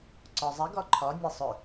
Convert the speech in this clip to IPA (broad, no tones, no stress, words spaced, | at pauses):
ǀɔzˤe ɡɒǃʰɒ nʲesˤɵ